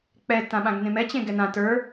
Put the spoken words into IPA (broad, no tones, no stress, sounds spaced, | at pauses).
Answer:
k͡p ɛ t ã ɓ ã ɡ n ẽ m ɛ t͡ɕ ẽ ɡ ɛ n ã t ə˞